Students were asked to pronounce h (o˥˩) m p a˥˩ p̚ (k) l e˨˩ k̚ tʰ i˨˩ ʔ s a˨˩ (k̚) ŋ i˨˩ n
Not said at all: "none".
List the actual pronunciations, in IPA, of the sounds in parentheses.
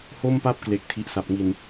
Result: o˥˩, k, p̚

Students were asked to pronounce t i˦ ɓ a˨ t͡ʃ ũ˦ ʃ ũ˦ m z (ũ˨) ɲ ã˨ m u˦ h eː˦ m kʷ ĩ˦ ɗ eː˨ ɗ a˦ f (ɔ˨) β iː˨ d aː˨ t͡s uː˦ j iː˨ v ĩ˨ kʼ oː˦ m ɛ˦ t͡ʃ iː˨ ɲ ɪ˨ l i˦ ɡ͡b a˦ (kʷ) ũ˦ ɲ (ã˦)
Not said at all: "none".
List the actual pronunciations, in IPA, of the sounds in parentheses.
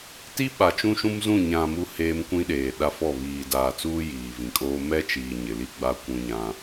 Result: ũ˦˨, ɔ˦˨, kʷ, ã˦

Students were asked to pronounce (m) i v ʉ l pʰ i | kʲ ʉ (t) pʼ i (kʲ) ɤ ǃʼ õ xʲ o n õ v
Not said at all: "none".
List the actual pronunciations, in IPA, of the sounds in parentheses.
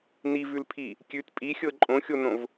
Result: n, t, xʲ

